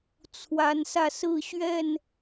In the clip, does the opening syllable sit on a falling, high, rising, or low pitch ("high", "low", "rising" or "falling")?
rising